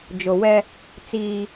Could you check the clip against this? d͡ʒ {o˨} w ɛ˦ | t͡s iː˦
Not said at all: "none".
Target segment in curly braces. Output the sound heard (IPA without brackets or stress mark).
o˨